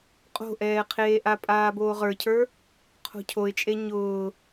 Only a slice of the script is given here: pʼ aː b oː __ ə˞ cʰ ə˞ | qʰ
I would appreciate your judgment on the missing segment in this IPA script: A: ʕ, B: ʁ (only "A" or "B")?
B